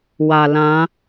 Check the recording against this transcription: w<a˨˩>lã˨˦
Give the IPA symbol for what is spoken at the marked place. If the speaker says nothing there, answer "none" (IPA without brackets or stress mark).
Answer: a˨˩